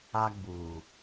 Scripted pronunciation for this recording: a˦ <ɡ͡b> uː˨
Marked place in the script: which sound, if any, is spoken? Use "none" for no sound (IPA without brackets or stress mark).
ɡ͡b